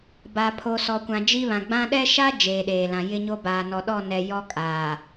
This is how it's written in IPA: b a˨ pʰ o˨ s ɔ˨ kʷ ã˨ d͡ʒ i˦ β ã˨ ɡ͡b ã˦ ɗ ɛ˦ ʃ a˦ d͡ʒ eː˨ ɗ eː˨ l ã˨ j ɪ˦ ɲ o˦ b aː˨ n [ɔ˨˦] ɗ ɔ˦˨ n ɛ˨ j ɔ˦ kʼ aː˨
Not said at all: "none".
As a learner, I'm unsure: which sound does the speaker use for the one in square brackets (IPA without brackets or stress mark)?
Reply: ɔ˨